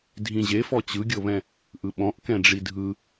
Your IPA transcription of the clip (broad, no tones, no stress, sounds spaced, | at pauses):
dʱ ĩ ʑ e f ɔ t͡ɕ ɯ ɡʲ ɤ β ɛ̃ | ʔ ɯ ɓ ɔ̃ ʔ k ɛ̃ ɖ͡ʐ i dʱ ɯ